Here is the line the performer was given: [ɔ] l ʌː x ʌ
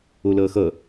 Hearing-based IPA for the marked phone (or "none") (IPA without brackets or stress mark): o